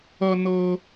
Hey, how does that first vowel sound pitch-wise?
high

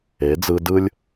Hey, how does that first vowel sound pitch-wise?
rising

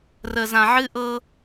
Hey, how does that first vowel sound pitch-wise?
low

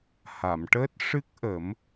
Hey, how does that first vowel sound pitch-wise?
low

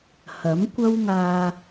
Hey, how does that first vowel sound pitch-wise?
rising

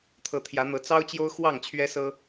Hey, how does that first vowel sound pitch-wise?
rising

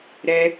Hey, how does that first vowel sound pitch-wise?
high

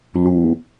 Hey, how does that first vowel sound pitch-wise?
low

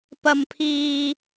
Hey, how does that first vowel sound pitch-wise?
high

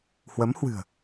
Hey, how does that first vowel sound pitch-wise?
rising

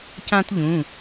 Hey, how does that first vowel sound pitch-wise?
high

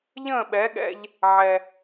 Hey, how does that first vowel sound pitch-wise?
falling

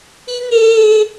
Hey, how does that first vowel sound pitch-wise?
high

